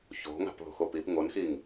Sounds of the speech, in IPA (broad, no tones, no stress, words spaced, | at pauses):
ço̤ŋa̤pðo̤ xopip ŋonxiŋ